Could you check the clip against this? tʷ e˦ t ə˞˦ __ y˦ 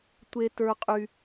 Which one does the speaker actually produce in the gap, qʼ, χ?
qʼ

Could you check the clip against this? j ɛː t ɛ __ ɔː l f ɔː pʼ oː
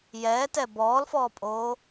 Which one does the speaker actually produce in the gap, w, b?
b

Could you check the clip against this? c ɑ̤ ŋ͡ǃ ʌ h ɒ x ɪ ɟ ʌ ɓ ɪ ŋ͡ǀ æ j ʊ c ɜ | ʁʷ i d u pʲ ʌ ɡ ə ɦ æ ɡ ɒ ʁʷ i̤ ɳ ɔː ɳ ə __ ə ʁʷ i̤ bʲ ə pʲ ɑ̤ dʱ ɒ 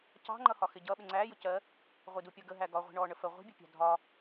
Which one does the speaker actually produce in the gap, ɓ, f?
f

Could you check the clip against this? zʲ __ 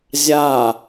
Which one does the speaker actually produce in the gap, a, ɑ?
a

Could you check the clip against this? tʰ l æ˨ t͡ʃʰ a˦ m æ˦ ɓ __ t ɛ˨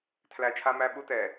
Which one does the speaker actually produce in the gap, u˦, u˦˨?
u˦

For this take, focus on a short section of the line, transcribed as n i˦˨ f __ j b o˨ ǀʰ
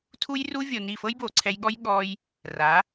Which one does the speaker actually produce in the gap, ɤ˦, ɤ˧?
ɤ˦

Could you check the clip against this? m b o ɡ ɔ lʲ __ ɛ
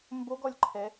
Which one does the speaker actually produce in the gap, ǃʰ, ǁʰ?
ǃʰ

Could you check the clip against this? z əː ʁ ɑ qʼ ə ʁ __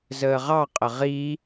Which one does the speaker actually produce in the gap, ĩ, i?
i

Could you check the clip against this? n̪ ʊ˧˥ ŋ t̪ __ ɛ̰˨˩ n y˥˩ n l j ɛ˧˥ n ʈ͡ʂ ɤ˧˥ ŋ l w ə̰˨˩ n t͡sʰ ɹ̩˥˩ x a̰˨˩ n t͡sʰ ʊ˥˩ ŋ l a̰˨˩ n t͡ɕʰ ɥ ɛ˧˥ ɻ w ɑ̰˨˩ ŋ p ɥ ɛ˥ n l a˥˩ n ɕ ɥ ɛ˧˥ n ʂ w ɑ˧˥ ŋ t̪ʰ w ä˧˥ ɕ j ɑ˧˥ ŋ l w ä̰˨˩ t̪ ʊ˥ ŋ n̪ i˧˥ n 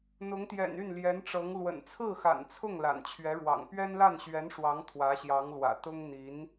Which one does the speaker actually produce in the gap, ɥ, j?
j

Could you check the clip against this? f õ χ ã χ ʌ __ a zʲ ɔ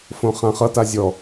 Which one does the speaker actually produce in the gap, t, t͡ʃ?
t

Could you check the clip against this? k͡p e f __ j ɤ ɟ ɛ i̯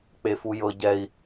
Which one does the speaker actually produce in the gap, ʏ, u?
u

